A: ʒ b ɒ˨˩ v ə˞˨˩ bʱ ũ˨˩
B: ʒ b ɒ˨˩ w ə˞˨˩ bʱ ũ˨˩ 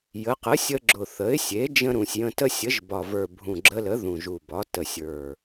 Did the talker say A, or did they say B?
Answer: A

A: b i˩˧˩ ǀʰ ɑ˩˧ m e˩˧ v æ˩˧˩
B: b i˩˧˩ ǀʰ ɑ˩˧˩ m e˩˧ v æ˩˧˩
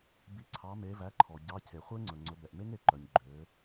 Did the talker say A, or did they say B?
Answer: A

